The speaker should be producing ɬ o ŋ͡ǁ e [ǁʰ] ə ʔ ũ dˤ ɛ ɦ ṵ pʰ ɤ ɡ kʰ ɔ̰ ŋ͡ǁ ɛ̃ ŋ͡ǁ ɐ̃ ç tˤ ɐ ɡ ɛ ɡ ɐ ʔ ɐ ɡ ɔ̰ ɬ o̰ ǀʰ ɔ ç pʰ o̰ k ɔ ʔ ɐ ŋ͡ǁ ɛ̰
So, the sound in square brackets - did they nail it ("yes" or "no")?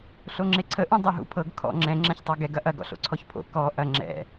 no